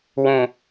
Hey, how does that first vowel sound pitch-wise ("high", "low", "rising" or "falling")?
low